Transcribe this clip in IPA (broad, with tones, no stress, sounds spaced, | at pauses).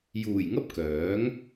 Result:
j uː˨˩ j ŋ ɐ˥ p̚ k œː˨˥ ŋ